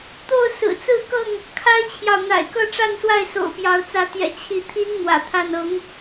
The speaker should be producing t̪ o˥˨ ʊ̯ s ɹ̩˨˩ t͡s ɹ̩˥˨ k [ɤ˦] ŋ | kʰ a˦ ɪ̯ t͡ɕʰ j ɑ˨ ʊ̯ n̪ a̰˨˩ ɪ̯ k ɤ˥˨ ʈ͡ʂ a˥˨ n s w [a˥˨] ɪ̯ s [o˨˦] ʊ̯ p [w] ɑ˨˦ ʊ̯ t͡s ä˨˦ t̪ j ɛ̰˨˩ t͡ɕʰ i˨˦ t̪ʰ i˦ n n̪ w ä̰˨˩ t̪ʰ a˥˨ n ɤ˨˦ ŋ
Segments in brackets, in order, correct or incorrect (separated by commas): incorrect, correct, incorrect, incorrect